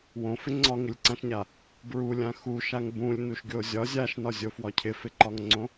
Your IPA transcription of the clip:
wõfɪ ŋ͡ǀɒŋɪlʲǀãʃɲa | bɹulʲã xuʃaŋ bũlʲnuʃɡʲo zʲɒ zʲaʃnɒzʲofwɒ cʰɪfɪǃɒŋŋ͡ǀõ

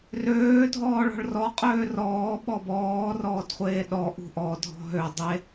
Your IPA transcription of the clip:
røːdʱɔː ɭɔ̤ɭrɔqʼøː rɔː ɓɔbɔːrɔːd χʷeːɗɔʔṳ ʔɔdʱɔ̤ ɦø dˤe

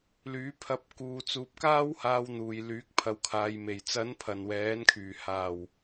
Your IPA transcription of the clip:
lyː˨˥pʰɐ˧p̚ kuː˨ t͡suː˨p̚ kaː˥whaː˧wn̪uː˨jlyː˨˥k̚ pʰɐ˨wkʰaː˨jme˨˩j t͡sɐ˨˥npʰɐ˨˩n wɛː˨˥nkʰyː˨˩haː˨˩w

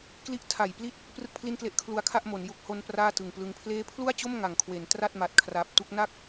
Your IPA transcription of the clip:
kli˦˥ʔtʰa˨˩jpli˥˩t̚ | prɯ˥˩k̚pʰli˥˩nkle˦˥ʔkʰlu˦˥a̯ kʰa˥˩ʔmo˩˦n ju˨˩k̚ ho˧n praː˥˩tɯ˨˩ŋplɯ˧ŋ pʰleː˦˥pʰlu˥˩a̯t͡ɕo˥˩m ŋa˨˩ŋkʰwe˩˦n tra˥˩t̚ ma˨˩t̚kʰra˨˩p̚tu˥˩k̚ na˥˩k̚

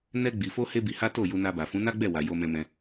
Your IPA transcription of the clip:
nɛ˧ ɡ͡bi˨fo˧ he˦bi˧ha˦ to˦˨ju˧na˧ba˨ fũ˨˦na˦ɡ͡bɛ˦˨wa˨ jo˧mɛ̃˧mɛ̃˧

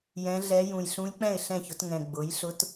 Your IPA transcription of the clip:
jɛ̃˧˥ɮɛ˧˥ jũ˨˩jɬũ˧˥jk͡pɛ̃˥˩ɪ̯ ɬɛ̃˥˩çʊ˩˥tŋɛ̃˨˩ ɡ͡bʊ˩˥jɬʊ˧˥t

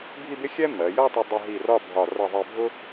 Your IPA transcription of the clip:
bʱi˥˧bɪ˥ xʲɛ˥ mɜ˩˧jʌ˥˧tˤə˧ dˤʌ˧ɦi˧˩ rɒ˥˧bʱɒ˧˩ rʌ˧˩ðˤɜ˧bʱʊ˥

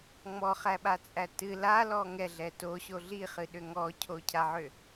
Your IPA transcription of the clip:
ŋ͡mɔχæɓat͡sʼæ tɨ lalɔ ŋɛɮɛ toɕo ɮiχɨɗʏ ŋɔcʰocʰaʕʏ

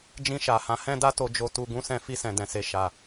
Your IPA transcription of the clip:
d͡ʒĩ˧ʃa˨hã˨˦ hɛ̃˦da˦ to˧d͡ʒo˧tu˧ ɡũ˧sɛ̃˧ fi˧sɛ̃˨ dɛ̃˨se˨ ʃa˨

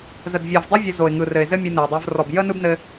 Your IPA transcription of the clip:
zə˨dvʲɔ˨vdˤɯ˦ vʲə˧zo˨ɪ̯ŋɯ˨rɘ˨ɪ̯ zɘ˦mʲɯ˧nɘ˨ɪ̯dˤə˞˧v rɔ˨b jə˦nɯ˦bnɘ˧

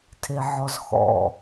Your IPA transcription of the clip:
tʰeʕɔzxɔ̰

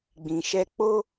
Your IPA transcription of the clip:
ɡ͡bĩ˨ʃɛ˧ k͡po˦

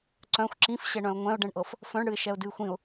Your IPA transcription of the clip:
ǀœ̃xʷ ǁĩfɕɛɳœ̃ʊ̯ ŋʷɛ̃ʊ̯ɖɛ̃ɳʔɤf | fœ̃ɳɽɨɪ̯ʃɛʊ̯dɨːxʷ ĩʊ̯

